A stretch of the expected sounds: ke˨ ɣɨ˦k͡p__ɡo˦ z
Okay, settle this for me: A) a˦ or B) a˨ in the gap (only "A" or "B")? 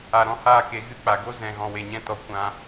B